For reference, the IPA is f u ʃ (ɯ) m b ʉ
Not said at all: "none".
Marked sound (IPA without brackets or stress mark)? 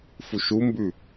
u